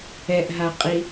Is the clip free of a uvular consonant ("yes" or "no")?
no